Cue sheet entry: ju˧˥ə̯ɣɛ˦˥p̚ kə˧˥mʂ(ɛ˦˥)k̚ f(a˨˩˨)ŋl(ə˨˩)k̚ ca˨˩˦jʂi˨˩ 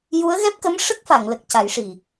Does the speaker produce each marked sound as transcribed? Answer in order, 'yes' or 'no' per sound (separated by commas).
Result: no, yes, yes